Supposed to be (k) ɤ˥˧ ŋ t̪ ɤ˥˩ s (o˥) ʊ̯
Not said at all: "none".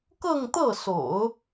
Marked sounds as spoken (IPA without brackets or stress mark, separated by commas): k, o̰˨˩˦